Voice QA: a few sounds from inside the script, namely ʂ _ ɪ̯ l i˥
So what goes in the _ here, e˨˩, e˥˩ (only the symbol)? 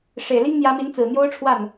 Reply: e˨˩